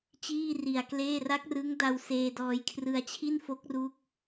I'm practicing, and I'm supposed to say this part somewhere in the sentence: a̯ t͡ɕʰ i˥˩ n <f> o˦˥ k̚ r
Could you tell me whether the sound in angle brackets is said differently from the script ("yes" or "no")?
no